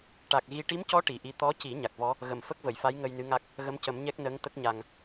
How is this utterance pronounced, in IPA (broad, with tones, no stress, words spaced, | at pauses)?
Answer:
ʈa˨˩k̚ɣi˧ ʈi˧˥mcɔ˧˥ ʈi˨˩˨ʔi˧˥ t̪ɔ˧˥ci˨˩˦ ɲa˨˩k̚vɔ˧˥ | ɣə˨˩˨m fə˦˥k̚və˨˩˨jfa˧˥j ŋə˧jnɨ˧˥ŋa˦˥k̚ | ɣə˧˥mcə˨˩˦mɲɛ˦˥k̚ nəː˧˥ŋt̪ə˦˥k̚ɲa˨˩ŋ